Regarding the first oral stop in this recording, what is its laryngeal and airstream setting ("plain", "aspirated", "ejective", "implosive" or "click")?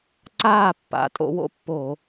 click